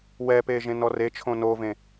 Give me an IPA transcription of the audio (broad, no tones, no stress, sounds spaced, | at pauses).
w ɛ p eː ʒ ẽ n ɔ r e t͡ʃʰ õ n o v ẽ